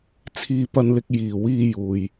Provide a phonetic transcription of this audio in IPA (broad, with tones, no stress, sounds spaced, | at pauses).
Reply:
t͡sʰ iː˥ p ɐ˥ n l ɪ˥ k̚ j iː˨ w iː˧ j uː˨ j